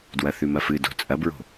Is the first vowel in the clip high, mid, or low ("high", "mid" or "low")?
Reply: low